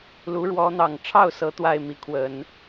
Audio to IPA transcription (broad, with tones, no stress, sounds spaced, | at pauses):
l u˧˥ ɻ w ɔ˧˥ n̪ ɑ˨˩ ŋ ʈ͡ʂʰ ɑ˥˩ ʊ̯ s ɤ˧˥ t̪ w a˥˩ ɪ̯ m i˧˥ kʰ w ə˨˩˦ n